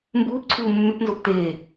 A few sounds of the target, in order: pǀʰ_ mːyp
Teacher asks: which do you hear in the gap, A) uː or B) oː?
A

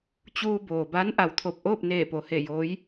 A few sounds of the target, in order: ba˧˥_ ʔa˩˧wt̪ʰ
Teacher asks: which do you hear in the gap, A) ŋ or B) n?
B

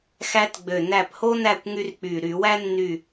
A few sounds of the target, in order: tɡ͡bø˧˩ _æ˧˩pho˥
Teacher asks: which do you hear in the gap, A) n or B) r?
A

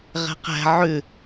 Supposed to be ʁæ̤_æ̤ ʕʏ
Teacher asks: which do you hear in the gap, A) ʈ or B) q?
B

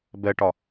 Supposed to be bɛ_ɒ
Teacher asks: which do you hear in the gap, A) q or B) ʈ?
B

